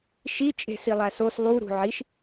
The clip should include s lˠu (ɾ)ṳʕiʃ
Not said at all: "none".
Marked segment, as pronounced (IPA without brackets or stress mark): ɾ